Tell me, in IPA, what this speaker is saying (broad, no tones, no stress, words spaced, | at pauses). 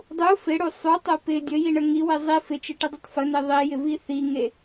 dˤu fɪɽu sˤutˤo pɪ dʲəjiɳə ŋiwɪ zˤi fɪt͡ʃɪʈɪdˤətˤ fəne ðˤijɪvi θiŋe